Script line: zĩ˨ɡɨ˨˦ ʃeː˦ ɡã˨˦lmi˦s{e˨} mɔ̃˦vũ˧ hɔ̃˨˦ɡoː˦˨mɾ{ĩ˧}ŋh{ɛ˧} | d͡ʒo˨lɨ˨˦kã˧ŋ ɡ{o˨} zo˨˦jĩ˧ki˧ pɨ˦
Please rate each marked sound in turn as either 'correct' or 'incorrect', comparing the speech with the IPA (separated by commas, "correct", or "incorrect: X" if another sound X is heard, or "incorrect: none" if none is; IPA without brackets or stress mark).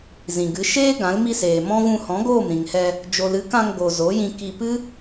incorrect: eː˨, incorrect: ĩ˨, correct, correct